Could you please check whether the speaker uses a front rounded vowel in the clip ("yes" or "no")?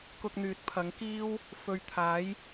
yes